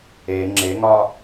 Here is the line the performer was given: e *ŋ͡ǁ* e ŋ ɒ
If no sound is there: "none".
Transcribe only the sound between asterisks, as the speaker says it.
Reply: ŋ͡ǁ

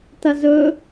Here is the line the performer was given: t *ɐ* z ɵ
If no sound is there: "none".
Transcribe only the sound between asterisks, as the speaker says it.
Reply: ɐ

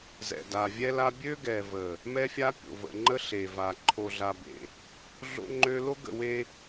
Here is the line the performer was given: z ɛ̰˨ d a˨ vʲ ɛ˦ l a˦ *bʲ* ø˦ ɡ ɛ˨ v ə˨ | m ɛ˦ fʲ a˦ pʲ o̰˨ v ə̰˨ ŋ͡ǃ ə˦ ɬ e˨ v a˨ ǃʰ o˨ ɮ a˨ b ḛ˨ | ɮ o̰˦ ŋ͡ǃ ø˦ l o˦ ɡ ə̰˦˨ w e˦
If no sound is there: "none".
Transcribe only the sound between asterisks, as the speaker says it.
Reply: bʲ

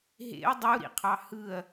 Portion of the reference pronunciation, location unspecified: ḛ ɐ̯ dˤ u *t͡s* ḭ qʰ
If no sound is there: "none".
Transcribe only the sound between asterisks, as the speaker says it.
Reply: ɾ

